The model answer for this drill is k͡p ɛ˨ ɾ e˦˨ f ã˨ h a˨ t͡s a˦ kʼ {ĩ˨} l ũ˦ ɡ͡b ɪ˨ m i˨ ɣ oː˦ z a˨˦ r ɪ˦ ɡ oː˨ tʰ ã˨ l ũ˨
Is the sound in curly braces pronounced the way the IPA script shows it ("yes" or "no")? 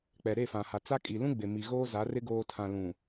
no